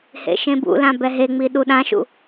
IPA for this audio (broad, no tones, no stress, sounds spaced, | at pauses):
h ḛ ʃ ẽ b ṵ l ã b ɛ ɦ e ŋ͡m i ɗ u ɗ ã ʃ ṵ